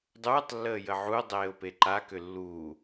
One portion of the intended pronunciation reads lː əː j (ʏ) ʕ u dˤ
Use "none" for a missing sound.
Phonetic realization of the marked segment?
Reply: ə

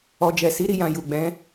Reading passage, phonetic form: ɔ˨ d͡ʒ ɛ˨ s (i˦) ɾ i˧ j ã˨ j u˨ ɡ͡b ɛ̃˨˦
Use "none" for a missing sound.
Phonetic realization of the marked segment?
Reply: i˨˦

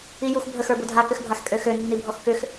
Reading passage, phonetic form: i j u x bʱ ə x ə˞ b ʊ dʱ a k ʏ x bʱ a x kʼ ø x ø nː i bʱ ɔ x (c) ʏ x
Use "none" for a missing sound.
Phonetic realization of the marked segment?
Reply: k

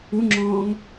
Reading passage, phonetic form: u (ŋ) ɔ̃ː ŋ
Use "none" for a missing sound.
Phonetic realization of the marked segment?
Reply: ŋ͡ǁ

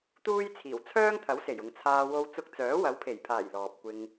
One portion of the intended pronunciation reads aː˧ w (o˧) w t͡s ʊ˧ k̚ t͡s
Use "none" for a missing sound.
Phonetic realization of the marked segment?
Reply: o˧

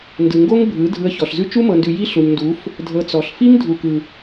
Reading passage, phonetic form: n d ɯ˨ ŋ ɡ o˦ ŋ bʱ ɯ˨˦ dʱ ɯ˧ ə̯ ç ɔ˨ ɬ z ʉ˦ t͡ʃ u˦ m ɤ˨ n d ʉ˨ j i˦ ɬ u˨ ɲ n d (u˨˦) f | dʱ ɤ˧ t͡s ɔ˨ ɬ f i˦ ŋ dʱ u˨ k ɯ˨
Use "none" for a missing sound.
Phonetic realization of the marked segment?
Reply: u˨˦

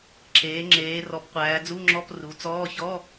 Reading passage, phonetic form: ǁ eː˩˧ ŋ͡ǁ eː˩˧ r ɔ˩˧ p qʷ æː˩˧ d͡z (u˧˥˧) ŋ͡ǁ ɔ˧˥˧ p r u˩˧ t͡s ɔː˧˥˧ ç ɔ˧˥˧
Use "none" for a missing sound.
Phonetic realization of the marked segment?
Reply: u˧˥˧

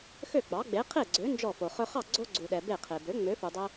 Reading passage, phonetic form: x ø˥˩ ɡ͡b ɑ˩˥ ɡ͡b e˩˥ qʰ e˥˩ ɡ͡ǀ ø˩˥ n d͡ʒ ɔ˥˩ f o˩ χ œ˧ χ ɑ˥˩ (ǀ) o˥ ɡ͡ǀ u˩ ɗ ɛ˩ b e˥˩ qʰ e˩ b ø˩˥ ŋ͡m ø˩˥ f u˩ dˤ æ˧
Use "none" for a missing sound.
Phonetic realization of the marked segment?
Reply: ɡ͡ǀ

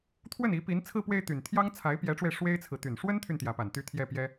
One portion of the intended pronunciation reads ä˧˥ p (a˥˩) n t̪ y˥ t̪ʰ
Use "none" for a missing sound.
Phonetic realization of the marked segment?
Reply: a˨˩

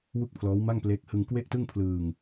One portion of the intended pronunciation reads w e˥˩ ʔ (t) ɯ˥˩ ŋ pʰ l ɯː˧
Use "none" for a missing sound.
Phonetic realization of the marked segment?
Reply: t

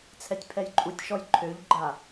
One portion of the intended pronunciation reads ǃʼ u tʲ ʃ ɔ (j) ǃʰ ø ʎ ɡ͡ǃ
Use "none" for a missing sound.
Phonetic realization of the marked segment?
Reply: j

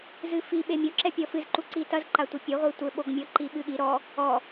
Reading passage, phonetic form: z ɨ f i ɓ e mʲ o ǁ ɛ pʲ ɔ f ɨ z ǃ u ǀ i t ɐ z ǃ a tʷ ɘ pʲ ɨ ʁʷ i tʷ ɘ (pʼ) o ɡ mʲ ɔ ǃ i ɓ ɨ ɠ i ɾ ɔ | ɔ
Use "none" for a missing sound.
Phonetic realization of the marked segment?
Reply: ɓ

